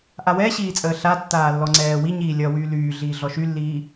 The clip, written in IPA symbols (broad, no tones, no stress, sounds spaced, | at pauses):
ʔ a w ɛ ɕ iː t͡sʼ əː ɬ a tː aː lː ɔ ŋ͡ǀ ɛː w i ɲ iː lʲ ʌː w yː l yː ɮ iː ɮ ɔ ʃ y lː iː